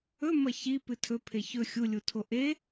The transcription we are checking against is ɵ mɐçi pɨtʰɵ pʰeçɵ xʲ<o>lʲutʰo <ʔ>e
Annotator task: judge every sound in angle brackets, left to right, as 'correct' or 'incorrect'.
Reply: incorrect: u, correct

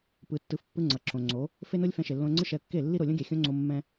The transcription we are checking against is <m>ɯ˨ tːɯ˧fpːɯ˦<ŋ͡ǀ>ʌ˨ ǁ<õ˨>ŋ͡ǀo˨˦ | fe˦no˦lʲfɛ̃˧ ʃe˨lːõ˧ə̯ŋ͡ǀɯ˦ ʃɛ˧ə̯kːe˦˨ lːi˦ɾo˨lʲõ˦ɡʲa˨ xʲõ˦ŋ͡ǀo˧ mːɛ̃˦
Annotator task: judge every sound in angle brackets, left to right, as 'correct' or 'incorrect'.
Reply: incorrect: p, correct, correct

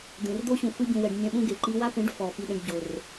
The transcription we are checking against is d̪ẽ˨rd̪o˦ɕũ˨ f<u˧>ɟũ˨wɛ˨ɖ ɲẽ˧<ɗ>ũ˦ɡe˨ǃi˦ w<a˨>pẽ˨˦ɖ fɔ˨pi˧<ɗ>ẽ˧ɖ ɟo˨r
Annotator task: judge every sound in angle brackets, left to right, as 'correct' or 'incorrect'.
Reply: incorrect: ɯ˧, incorrect: ɓ, incorrect: a˦, correct

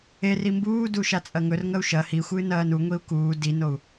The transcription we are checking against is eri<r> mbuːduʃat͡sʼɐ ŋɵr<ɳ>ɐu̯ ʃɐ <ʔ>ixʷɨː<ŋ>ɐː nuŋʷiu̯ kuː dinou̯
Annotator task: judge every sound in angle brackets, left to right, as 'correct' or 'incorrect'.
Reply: incorrect: none, incorrect: ŋ, incorrect: h, incorrect: n

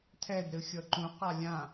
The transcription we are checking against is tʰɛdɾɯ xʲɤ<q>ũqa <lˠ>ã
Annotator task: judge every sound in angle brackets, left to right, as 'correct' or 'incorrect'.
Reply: incorrect: ǃ, incorrect: lʲ

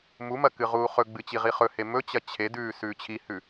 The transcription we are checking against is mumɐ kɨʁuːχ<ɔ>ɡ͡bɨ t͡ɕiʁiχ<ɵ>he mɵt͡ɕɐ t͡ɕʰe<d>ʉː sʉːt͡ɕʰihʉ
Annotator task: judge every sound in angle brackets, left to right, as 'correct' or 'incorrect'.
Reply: incorrect: ɵ, correct, correct

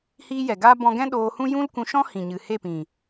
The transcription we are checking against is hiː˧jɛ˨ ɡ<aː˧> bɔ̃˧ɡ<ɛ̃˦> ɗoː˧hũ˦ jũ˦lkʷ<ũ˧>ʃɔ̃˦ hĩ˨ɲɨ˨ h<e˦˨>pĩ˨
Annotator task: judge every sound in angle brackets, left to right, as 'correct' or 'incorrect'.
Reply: correct, correct, correct, correct

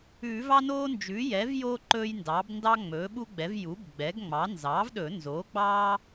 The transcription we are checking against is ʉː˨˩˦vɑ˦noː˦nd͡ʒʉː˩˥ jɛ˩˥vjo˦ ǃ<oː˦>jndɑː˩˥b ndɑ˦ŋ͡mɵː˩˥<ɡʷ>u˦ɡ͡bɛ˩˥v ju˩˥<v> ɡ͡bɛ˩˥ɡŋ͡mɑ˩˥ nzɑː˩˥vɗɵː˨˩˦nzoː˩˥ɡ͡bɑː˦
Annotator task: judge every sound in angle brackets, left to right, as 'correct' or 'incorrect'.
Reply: incorrect: ɵː˦, incorrect: ɓ, incorrect: b

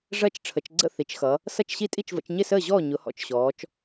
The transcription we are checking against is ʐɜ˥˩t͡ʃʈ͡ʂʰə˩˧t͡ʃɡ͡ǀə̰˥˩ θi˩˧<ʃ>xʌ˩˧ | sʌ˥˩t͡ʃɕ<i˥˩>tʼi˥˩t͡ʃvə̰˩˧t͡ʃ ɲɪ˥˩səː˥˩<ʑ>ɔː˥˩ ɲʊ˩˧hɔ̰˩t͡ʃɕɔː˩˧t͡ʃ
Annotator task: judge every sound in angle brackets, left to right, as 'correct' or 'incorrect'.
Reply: incorrect: t͡ʃ, correct, correct

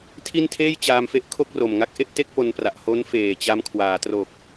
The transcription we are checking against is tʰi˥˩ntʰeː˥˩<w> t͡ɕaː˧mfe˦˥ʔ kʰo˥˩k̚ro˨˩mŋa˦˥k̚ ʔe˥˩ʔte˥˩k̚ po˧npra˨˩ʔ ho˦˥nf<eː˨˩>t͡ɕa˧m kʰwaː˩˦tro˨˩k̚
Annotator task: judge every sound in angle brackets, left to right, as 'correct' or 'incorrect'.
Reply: incorrect: j, correct

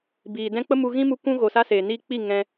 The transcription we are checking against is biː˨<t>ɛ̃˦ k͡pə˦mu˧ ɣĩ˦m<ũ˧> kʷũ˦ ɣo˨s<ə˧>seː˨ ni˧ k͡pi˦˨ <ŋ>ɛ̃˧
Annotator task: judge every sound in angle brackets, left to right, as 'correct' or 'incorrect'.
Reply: incorrect: d, incorrect: u˧, incorrect: a˧, correct

